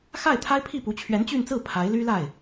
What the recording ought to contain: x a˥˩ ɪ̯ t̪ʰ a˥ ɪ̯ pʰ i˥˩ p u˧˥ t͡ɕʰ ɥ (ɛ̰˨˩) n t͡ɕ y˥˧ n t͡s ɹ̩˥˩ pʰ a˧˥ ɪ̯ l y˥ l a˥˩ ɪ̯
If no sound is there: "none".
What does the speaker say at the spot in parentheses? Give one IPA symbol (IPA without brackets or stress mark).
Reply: ɛ˧˥